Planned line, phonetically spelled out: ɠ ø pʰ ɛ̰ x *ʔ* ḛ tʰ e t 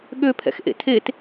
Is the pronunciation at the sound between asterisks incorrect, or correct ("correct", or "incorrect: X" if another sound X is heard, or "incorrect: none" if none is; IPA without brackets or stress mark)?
correct